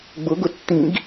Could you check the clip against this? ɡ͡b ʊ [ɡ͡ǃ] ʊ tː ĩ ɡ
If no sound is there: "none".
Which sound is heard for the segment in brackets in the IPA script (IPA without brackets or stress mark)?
ɡ